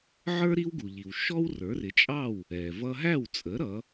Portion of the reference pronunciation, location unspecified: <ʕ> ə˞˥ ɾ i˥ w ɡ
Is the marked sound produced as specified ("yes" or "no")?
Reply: yes